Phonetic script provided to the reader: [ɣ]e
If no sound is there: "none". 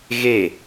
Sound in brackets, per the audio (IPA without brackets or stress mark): ɣ